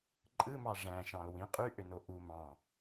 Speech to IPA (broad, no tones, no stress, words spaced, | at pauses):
ǃʼɯmɑ ʐæ̃ʃɑ̃o̯ wĩ qʼyʔøno ʔu mɑ̃